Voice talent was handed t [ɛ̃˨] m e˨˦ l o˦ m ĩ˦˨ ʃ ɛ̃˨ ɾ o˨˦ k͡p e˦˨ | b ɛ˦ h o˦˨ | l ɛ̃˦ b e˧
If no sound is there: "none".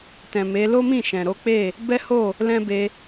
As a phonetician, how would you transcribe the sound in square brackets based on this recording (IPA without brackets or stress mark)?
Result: ɛ̃˨